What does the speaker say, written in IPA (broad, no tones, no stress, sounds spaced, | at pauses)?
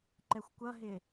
ǃ ɛ xʷ kʷ ʌ ɦ ɪ